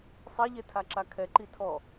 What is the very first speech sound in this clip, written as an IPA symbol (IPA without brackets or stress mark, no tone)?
sˤ